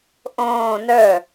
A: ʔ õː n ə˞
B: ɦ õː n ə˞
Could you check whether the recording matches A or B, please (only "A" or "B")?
A